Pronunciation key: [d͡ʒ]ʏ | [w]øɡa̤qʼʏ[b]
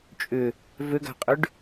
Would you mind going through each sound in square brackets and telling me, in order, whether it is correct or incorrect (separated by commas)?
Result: incorrect, incorrect, incorrect